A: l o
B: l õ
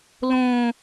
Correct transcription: B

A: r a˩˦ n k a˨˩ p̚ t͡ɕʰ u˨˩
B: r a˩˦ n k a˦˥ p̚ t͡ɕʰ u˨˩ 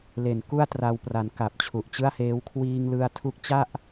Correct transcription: A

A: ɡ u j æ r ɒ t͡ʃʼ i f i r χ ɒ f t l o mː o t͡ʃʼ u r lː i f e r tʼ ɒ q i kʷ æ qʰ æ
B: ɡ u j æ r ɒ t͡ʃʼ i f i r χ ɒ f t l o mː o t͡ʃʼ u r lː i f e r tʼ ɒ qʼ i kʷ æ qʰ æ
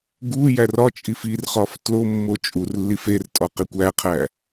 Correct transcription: A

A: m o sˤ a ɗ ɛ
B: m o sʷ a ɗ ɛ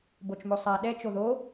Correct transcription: A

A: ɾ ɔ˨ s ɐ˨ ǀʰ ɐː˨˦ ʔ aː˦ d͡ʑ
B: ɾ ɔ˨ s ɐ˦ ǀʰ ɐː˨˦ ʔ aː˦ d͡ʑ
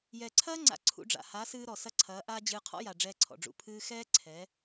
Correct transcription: B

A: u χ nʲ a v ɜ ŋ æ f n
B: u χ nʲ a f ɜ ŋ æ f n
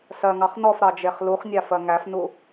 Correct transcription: B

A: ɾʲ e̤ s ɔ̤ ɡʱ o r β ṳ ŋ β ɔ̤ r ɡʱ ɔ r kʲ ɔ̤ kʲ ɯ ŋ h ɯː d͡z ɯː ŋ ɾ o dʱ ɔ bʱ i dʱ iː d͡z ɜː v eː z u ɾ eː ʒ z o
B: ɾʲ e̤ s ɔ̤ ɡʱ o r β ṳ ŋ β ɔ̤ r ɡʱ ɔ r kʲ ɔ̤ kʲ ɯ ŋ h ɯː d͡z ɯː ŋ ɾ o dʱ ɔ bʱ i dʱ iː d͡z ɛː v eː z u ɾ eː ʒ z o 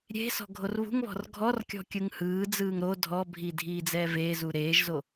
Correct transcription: B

